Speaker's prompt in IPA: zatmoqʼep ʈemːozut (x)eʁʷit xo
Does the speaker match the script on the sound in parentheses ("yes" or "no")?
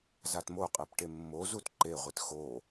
no